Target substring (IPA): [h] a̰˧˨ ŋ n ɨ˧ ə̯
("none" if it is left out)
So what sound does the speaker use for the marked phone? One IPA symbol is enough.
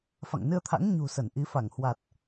f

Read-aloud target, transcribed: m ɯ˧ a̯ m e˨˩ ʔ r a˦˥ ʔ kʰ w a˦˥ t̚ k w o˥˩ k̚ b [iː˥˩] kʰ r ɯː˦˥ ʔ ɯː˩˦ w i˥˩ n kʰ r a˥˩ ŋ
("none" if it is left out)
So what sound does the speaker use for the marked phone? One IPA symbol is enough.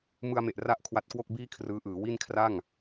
iː˥˩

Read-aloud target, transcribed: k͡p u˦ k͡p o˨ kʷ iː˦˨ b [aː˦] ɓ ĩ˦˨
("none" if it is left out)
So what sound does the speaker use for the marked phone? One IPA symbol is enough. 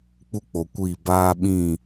aː˦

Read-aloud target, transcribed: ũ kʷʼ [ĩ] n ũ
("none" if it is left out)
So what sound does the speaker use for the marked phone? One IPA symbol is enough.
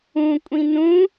ĩ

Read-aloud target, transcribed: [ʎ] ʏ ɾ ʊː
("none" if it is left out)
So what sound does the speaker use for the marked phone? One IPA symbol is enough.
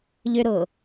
ʎ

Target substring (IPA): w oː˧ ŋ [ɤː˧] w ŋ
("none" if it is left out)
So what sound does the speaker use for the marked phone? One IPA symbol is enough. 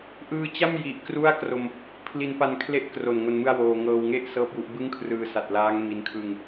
ɤː˧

